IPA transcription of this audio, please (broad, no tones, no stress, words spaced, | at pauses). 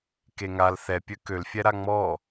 keŋal θɛpʲø kølfʲɛ ɾaŋ͡mɔ